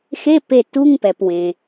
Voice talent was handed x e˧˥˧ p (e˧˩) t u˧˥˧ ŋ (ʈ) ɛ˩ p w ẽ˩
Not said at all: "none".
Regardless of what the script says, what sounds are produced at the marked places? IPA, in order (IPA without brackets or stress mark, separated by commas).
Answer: e˧˩, p